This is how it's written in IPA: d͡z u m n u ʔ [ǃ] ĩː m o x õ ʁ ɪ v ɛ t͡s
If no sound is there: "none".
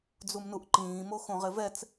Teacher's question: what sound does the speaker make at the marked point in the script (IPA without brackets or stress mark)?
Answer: ǃ